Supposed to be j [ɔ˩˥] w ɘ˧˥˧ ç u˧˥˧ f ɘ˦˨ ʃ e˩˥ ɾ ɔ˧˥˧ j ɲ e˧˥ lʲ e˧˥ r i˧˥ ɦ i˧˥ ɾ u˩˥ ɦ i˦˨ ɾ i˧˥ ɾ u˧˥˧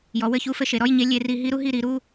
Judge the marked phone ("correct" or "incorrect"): correct